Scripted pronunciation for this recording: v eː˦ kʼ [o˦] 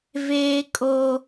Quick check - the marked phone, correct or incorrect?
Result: correct